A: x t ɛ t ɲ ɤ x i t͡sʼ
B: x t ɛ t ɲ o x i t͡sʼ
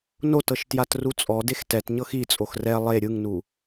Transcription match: A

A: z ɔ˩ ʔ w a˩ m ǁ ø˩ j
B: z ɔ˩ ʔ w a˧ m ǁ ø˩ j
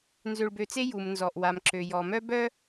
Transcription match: A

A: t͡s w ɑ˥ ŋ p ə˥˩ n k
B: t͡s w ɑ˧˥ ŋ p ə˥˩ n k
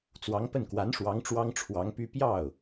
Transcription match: B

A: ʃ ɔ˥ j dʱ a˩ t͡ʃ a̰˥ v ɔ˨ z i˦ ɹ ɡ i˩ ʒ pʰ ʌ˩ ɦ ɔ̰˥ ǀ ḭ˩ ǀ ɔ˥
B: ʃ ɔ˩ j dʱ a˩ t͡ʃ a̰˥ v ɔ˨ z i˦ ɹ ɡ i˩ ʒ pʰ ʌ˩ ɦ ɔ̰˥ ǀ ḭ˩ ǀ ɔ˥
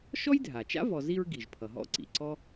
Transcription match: A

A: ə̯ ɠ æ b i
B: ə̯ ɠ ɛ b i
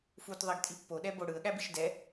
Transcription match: A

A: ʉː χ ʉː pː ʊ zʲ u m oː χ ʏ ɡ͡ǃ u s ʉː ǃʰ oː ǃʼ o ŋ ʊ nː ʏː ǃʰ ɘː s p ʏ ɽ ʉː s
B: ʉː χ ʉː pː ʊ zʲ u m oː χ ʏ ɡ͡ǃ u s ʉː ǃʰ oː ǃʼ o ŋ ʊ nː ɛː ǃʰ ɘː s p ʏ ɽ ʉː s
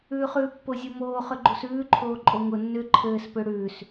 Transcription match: A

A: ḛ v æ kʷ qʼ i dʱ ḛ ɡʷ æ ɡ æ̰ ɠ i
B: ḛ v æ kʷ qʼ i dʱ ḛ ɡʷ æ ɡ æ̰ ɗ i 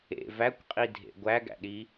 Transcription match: B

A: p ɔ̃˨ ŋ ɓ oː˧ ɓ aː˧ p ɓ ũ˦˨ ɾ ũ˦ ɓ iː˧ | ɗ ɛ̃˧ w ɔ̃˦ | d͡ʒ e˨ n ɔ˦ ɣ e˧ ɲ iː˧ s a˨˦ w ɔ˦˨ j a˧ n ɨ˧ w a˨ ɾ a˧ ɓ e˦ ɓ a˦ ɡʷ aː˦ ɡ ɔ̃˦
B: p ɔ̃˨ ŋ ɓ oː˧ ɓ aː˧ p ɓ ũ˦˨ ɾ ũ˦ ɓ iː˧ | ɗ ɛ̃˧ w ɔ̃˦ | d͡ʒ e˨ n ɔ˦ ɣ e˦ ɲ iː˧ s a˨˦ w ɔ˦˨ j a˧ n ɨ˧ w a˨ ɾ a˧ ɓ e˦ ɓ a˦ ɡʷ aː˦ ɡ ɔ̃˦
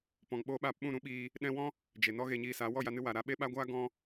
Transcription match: A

